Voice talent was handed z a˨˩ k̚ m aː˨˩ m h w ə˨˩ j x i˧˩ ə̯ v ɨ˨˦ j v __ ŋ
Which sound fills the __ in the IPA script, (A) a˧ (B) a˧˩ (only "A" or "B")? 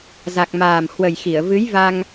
A